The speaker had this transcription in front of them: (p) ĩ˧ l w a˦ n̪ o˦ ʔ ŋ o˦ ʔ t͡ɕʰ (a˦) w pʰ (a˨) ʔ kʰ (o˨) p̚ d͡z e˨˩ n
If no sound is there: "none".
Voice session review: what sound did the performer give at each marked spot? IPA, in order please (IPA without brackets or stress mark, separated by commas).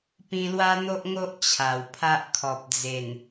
p, a˨˩, a˦, ɔ˨